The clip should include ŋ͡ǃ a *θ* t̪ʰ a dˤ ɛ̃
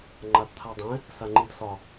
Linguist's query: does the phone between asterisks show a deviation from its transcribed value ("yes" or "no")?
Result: yes